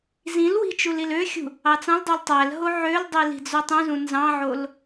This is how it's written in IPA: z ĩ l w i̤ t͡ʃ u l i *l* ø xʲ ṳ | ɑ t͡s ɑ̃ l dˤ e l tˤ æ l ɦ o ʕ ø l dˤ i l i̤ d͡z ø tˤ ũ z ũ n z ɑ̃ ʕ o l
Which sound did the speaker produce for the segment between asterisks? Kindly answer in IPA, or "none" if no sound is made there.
l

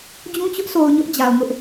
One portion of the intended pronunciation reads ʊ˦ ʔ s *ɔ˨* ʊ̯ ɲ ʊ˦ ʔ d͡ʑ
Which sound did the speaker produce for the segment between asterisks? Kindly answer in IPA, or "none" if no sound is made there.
o˨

